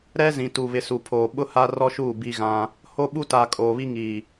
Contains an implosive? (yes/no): yes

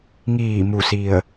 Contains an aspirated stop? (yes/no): no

